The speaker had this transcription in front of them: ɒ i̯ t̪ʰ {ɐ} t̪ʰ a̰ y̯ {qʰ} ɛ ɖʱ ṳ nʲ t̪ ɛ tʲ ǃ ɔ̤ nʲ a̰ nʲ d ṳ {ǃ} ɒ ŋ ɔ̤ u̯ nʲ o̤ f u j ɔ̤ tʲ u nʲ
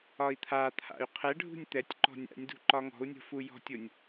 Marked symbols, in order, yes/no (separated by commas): no, yes, yes